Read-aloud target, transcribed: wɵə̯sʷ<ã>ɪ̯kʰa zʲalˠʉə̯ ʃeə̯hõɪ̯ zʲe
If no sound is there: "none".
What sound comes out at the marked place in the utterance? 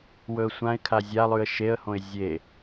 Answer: ã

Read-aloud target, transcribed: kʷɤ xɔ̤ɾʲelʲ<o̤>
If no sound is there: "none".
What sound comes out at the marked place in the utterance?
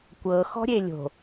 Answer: o̤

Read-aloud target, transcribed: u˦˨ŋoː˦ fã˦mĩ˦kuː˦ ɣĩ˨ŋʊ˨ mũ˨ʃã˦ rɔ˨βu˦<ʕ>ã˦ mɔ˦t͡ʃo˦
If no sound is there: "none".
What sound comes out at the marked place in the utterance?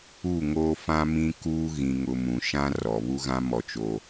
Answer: ɣ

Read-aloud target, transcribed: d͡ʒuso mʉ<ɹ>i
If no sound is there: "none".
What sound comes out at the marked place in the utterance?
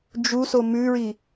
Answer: ɹ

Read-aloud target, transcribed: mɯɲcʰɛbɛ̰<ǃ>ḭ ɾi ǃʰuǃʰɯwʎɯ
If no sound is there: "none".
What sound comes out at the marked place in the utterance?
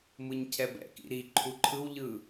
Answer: k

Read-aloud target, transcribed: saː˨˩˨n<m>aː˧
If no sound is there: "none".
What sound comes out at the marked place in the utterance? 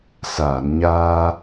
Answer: ɲ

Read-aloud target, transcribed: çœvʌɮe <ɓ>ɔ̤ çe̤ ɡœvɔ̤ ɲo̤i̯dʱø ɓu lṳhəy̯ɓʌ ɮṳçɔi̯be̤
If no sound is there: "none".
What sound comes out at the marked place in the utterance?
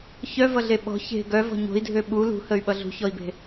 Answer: ɓ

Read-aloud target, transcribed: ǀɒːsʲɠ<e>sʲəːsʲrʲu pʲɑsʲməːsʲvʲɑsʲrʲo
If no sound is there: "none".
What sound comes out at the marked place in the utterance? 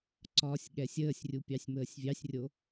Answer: ɛ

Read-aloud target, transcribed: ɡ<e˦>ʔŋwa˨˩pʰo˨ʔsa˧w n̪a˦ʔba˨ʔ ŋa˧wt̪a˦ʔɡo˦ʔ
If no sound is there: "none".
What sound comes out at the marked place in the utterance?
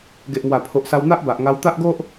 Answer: e˨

